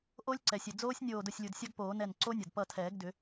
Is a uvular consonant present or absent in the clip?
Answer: absent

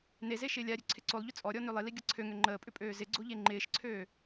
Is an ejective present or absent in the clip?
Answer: present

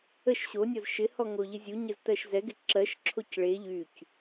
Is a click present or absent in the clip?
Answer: present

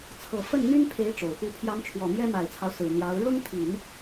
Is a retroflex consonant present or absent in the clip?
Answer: present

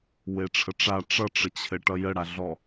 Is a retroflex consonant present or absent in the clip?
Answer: present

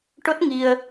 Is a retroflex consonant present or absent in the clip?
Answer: present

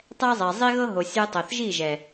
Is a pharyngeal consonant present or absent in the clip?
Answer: absent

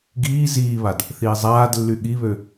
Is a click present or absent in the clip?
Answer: absent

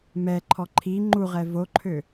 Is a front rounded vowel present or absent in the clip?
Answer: present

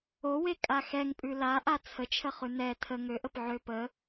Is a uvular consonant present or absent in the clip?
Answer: present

